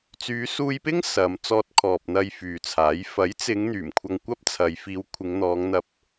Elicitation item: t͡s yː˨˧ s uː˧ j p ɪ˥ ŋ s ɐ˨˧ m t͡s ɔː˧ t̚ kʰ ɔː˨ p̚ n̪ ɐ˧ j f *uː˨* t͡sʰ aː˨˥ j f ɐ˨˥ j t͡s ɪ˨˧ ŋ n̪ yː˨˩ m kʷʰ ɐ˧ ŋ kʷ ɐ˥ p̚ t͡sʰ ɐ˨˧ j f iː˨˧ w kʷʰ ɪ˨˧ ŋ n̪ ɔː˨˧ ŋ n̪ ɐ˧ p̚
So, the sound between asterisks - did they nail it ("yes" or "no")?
no